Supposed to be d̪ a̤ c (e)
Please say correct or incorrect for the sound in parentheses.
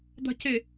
correct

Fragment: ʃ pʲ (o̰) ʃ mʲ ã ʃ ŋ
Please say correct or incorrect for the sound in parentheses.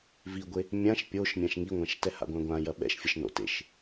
incorrect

